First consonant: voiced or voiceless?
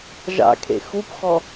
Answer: voiced